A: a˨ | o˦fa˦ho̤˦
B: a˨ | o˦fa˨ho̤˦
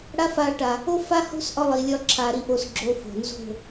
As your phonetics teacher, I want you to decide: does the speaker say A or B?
A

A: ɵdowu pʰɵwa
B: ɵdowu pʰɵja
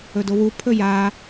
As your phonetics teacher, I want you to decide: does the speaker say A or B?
B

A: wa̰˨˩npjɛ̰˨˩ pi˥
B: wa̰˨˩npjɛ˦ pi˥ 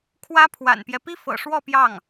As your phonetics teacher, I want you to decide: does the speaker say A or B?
B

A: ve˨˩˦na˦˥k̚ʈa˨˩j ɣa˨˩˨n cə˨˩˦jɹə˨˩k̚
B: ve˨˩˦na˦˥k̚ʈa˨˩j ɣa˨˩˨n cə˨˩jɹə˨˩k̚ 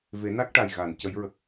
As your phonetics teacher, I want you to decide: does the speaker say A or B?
A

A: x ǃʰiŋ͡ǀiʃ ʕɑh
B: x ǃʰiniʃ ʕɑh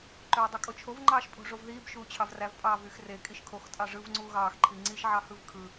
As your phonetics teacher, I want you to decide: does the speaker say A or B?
A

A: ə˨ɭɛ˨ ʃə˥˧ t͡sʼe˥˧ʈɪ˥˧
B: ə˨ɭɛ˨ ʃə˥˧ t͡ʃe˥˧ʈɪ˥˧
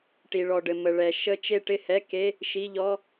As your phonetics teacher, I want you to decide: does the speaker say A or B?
B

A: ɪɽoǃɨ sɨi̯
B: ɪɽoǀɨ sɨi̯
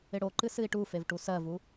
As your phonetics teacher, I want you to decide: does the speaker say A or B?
A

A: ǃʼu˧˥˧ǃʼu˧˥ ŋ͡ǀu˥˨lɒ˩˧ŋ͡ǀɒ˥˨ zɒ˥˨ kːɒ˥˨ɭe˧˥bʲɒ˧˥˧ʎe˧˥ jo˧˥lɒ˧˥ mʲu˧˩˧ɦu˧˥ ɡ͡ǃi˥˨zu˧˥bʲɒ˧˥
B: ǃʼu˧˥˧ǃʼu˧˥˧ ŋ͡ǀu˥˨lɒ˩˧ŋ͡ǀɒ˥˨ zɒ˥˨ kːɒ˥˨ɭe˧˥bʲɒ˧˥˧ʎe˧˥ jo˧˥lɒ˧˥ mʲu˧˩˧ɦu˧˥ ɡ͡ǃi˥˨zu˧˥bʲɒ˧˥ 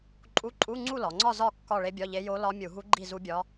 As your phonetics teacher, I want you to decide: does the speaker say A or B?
B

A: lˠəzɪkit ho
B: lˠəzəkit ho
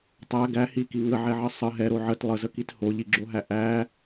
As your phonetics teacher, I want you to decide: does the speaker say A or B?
B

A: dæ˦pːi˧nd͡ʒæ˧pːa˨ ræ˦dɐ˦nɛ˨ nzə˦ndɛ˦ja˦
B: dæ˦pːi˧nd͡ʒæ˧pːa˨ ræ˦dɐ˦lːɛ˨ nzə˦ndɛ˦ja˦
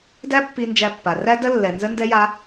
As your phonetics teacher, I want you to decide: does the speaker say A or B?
B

